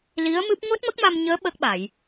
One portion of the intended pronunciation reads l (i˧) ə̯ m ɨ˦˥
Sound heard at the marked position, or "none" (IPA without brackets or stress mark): i˧˥